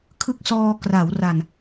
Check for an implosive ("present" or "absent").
absent